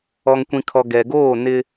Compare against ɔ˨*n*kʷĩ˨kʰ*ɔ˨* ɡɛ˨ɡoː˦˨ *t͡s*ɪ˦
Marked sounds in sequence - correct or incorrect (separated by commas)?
incorrect, correct, incorrect